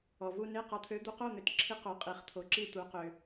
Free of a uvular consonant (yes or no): no